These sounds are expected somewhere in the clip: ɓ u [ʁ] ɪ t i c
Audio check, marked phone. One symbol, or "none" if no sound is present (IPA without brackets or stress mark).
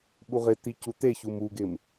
ʁ